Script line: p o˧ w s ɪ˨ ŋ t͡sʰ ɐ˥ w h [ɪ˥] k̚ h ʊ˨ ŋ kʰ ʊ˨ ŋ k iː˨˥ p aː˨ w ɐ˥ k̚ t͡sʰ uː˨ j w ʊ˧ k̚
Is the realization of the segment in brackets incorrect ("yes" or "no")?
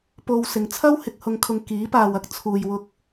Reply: yes